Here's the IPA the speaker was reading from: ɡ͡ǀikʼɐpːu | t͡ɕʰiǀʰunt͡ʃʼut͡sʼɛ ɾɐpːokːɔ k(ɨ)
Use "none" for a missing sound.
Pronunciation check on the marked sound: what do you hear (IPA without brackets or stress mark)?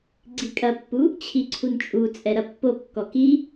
i